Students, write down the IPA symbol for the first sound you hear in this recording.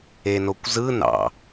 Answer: e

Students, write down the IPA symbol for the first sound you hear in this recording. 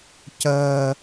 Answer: c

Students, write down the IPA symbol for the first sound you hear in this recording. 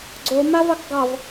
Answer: ɡ͡ǀ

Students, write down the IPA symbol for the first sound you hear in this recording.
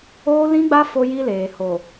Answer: oː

